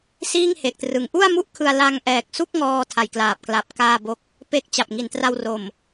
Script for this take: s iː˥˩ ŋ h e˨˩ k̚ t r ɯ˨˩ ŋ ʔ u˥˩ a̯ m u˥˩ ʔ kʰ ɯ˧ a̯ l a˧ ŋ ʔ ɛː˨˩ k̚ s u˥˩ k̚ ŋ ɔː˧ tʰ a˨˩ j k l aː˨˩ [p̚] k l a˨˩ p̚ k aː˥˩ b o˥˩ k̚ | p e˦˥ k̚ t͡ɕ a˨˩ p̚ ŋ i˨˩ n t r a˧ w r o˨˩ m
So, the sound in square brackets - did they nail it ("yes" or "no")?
yes